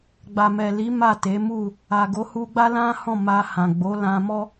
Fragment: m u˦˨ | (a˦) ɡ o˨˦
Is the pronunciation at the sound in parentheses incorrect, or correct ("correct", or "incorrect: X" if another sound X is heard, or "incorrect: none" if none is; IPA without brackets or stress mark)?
incorrect: a˨